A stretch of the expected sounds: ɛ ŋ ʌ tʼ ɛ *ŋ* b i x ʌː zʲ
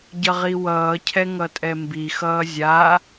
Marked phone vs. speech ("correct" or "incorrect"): incorrect